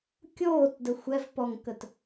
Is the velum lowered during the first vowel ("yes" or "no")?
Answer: no